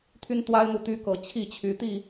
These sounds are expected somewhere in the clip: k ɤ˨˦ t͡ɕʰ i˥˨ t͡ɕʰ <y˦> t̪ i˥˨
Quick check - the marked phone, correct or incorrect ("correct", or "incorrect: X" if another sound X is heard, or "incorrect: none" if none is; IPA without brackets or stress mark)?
incorrect: y˨˦